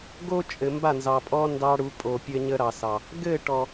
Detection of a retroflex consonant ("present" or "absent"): present